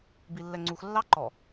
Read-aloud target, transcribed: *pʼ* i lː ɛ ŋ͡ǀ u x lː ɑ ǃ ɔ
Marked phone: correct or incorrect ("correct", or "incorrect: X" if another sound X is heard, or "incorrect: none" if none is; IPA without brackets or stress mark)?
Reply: incorrect: b